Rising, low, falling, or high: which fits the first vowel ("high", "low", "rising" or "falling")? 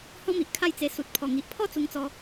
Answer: high